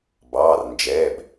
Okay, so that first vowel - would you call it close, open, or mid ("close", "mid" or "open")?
open